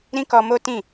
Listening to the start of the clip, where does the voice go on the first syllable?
high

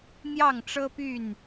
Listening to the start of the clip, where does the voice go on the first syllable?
falling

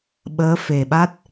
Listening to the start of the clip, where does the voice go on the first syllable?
rising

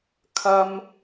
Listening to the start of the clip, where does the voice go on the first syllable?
high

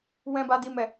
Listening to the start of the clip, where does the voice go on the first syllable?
high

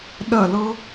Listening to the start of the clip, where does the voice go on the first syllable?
falling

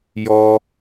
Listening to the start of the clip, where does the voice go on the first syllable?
high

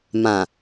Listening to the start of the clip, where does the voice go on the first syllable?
low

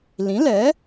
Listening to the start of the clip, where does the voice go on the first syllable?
rising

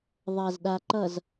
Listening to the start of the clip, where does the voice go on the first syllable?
low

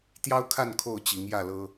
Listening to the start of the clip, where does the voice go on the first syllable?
high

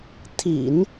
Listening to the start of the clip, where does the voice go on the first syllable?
low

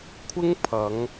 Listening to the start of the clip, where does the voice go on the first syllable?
high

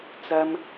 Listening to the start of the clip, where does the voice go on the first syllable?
low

